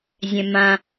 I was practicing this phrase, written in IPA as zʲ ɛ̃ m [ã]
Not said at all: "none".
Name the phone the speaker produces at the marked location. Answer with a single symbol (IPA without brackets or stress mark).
ã